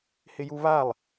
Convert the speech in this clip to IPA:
h ɪ j u β a lˠ

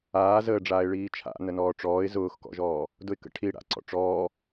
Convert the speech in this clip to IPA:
aː z əː ɖ͡ʐ aː ɪ̯ ɭ iː t͡ʃʰ a̰ n ə n ɔː ʈ͡ʂ ɔː ɪ̯ z ʊː x k ɔ̰ ʒ ɔː | d ʊ ɪ̯ k ə̰ ʈʰ i ɽ a̰ ǀ ɔ̰ ʈ͡ʂ ɔː

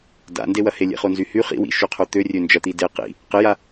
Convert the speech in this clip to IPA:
d a̰ n d e w ɐ h e lʲ ḛ χ o n z y h y χ ḭ w ḭ ʃ y qʰ o t̪ ø rʲ ø n d͡ʒ ɐ t̪ i d e q ḭ | q ɪ j a

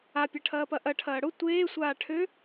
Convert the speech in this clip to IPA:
a pʲ ɐ ʈʰ ɐː p ɐ ʔ ɐ ʈʰ ɐː ɽ ʊ tʷ eː sʷ aː ʈʰ ø

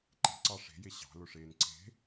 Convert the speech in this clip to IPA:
ǃ e̤ ǀ ɑ ʂ e̤ j e ɕ ɑ̤ l ʊ ʂ eː n ǀ e̤

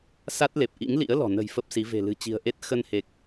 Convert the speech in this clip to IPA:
s a˦˥ t̚ l e˨˩ p̚ ʔ ḭ˧˥ ŋ l ḭ˧˥ ə̯ l ɔ̤˨˩ n ə̤˨˩ j f ə˦˥ p̚ s i˨˦ v e̤˨˩ l ɨ̤˨˩ t͡ɕ i̤˨˩ ə̯ ʔ e˦˥ t̚ x ə˧ n h e˨˩ k̚

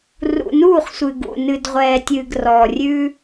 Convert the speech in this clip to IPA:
r ṵ˨ n uː˦˨ χ sʷ ɨ˨ ɡ ṵ˨ n ɨ˨ d ʁʷ ɛː˨ tʲ ɨː˨ ɡ r ɔː˨ rʲ ʉː˦

